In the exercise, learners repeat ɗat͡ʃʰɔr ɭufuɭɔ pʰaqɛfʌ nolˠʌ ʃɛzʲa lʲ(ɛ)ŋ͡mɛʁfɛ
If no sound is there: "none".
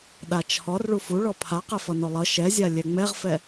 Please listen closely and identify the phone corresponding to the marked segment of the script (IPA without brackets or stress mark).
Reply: ɛ